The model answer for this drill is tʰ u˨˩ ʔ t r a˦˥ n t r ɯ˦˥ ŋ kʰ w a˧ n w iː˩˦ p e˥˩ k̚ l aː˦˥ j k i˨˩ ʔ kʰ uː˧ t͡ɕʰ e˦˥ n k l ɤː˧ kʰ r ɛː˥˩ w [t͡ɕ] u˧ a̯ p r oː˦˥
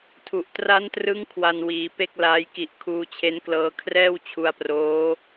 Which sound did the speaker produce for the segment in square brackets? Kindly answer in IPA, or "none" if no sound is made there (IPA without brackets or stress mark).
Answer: t͡ɕʰ